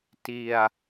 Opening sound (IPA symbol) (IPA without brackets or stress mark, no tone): t